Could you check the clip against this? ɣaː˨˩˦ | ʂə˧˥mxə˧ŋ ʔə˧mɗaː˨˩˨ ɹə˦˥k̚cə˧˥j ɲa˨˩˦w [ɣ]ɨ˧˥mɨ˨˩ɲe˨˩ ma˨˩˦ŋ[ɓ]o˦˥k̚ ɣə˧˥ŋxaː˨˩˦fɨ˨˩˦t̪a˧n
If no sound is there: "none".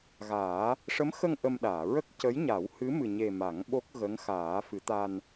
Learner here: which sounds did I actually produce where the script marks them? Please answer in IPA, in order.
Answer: h, ɓ

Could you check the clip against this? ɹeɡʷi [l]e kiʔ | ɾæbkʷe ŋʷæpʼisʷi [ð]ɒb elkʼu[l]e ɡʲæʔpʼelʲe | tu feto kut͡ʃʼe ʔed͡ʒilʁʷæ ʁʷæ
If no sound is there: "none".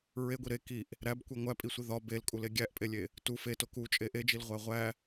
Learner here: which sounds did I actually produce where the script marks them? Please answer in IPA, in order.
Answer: ɾ, ð, l

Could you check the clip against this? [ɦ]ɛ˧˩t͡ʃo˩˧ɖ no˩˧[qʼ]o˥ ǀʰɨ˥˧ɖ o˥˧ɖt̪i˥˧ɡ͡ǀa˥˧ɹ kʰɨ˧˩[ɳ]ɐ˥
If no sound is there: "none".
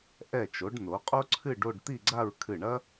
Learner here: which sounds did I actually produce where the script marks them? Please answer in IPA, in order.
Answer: ʔ, qʼ, ɳ

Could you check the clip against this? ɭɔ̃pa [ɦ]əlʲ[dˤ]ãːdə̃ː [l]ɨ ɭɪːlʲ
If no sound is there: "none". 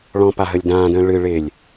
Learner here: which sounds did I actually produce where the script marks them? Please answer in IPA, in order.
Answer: ɦ, d, ɭ

